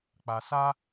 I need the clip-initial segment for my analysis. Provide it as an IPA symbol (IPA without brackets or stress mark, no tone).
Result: k͡p